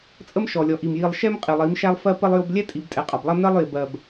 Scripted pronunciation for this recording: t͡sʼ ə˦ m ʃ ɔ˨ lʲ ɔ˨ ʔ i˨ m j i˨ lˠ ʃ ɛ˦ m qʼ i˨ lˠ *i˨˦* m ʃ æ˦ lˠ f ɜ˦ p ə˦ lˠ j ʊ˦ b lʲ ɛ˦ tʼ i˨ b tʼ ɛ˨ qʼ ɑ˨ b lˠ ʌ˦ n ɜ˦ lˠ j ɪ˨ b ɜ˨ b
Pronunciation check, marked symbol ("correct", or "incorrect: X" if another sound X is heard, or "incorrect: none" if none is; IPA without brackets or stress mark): correct